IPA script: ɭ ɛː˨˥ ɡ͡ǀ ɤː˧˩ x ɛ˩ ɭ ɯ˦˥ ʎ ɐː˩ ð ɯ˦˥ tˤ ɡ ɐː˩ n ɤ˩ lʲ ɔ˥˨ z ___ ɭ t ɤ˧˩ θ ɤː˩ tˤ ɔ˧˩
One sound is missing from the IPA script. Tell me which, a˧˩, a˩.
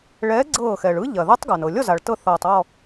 a˩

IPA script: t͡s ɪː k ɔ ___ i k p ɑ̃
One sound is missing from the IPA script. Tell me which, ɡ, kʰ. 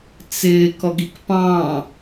ɡ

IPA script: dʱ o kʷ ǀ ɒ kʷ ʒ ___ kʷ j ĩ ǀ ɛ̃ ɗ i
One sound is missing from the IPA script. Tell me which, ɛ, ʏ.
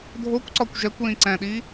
ɛ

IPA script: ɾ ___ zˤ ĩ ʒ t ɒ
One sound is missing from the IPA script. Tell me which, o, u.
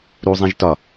u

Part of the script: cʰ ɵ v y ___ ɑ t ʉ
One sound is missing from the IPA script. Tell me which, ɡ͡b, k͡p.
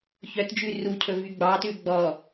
ɡ͡b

